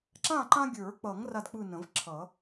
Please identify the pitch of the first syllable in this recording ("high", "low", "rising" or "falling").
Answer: falling